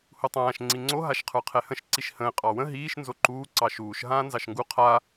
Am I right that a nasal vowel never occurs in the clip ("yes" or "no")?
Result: no